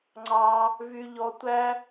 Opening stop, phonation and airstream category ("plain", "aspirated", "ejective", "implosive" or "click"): click